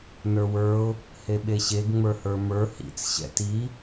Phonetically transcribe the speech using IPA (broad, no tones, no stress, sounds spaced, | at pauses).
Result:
n ə˞ w ə˞ ʊ̯ | h e ɓ e ɕ e ɡ ŋ͡m ə˞ h ə˞ m ə˞ h ḭ t͡s ɕ ɛ̰ t i